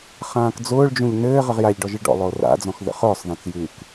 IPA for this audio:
χ ãː k d͡z ʊː ɭ d͡ʒ ũ ʎ n̪ ɘː ʁ ɨ ʁ j a ʎ ɖ ɔ ʒ ə ɭ ɖ ɔ̰ lˠ ʊː r a̰ d͡z ɔ̃ x ð ə̰ χ ʊː sˤ ð ã t͡s j ɨ k

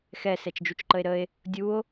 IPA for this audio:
x ɛ s ɛ t͡ʃ d͡ʒ u t͡ʃ ǃ ə e̯ ɾ ə e̯ | dʲ u o̯

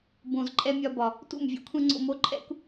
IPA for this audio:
b õ˨ z ǃʼ ɛ˧ mʲ ɒ˧ b ɒ˨ | t ṵ˦˨ m vʲ ṵ˦ kʷʰ ɛ̃˦ ŋ͡ǀ o̰˧ m o˦ ǃʼ ɛ̰˦ kʷ

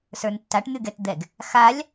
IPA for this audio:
s ə˞ n tː a ʈ n̪ y ɡ ɛ t d̪ ɛ ɡ | x a lʲ

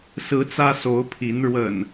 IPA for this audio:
s ɹ̩˨˦ t͡s ä˦ s o˨˦ ʊ̯ pʰ i˨˦ n ɻ w ə̰˨˩ n

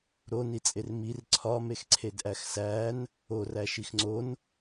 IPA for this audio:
ɾ o n i t͡sʼ e r m i r ǀʰ ɒ m e x ǀʰ e d ʔ æ x s æ n | o r æ ʃ i x ŋ͡ǀ o n

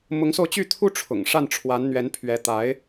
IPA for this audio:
m ʊ˧˥ ŋ s o˧ ʊ̯ t͡ɕ y˥˩ t̪ʰ u˥ ʈ͡ʂʰ ʊ̰˨˩ ŋ ʂ a˥˩ n ʈ͡ʂʰ w a˧˥ n n̪ ɥ ɛ˧˥ n pʰ ɥ ɛ˧˥ t̪ a˧˥ ɪ̯

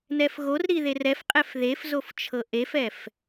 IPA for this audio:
n ɛ f ɣ o r ɾ i ð e r ɛ f qʼ ɛ f ð e f z o f t͡ʃʰ ɤ ʔ e f ɛ f

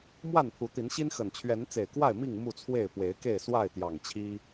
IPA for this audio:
m w a˥˨ n pʰ u˨˦ t̪ i˨˦ n ɕ i˦ n x ə˨˩ n t͡ɕʰ ɥ ɛ˨˦ n t͡s e˨˩ ɪ̯ k w a˥˨ ɪ̯ m i˥˨ ŋ m u˥˨ t͡sʰ w e˥˨ ɪ̯ p w e˨˦ ɪ̯ k e˥˨ ɪ̯ s w a˥˨ ɪ̯ t̪ j ɑ˨˩ ŋ t͡ɕʰ i˦

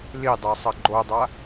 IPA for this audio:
l i dˤ ɛ sˤ ʌ ɡ͡ǃ o dˤ a

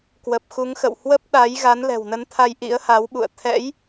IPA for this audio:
k w ə˨˩ p̚ x u˨˦ ŋ x ə̰˧˨ w h w ə˦˥ p̚ ɗ a˨˦ j ɣ a˨˦ n l ɛ̤˨˩ w n ə˨˦ n t̪ʰ a˧ j ʔ ḭ˧˥ ə̯ h a˨˦ w ɓ ṵ˧˨ ə̯ t̪ʰ ɛ̰˧˥ j

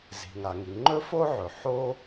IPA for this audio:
z i̤˩ ŋ a˩ ŋ i˩ ŋ͡ǃ ɵ˥ f o˥ ʕ ɵ˩ ħ o˥

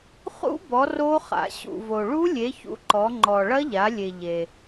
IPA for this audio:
χ ṵ˦˥ b ɔ˩˧ r o˦˥ χ a̰˩˧ ɕ ṵ˩ v o˩ ɭ u˦˥ lʲ e˩˧ ç ṵ˨˥ ǃ ɔ˩˧ ŋ͡ǃ ɔ˩ ɭ ɐ˦˥ ʎ a˩˧ lʲ e˩ ʎ e˩

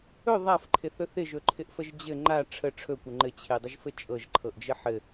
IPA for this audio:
ɵ ðˤ a f ǃʰ ɪ θ ɵ θ ɪ ʒ ɵ ǃʰ ɪ ʔ f ə ʒ d͡ʑ ɘ ŋ͡ǃ a ʈ͡ʂʰ ə ʈ͡ʂʰ ɵ kʷ ɘ ŋ͡ǃ ɘ t͡ɕʰ e dˤ ə ʒ f ɘ t͡ʃʼ ɤ ʒ ǃʰ ɤ ʔ d͡ʒ ɪ ħ ɘ

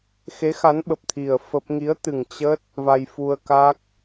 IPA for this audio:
x e˨˦ x a˨˦ n ɓ ə˨˩ p̚ t̪ʰ i˨˩ ə̯ f ə˦˥ p̚ ŋ i˨˦ ə̯ t̪ ɨ˨˩ ŋ t͡ɕ ə˦˥ t̚ | v a˧ j f u˧ ə̯ k a˦˥ k̚

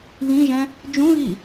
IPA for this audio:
β ĩ ʒ ɛ̃ | d͡ʒ ũ ɣ i

